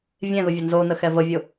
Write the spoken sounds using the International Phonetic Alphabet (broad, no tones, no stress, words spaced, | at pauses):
vʲẽðʊvʲa nzonəxɛ vəvʲʊ